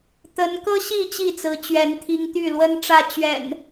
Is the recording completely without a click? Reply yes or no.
yes